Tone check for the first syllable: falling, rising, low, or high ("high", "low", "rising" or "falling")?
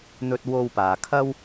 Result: low